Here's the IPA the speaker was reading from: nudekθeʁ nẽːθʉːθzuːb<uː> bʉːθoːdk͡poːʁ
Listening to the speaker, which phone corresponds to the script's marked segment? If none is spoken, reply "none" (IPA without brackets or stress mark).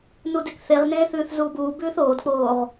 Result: uː